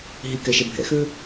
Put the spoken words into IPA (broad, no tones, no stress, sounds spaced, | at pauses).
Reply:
ɦ i k ɛ ʃ ɛ bʱ ɛ̰ x ø